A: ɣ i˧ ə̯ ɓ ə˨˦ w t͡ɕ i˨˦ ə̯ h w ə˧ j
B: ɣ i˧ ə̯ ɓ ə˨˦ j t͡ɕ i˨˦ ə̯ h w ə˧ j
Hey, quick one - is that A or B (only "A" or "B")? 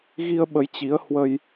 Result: B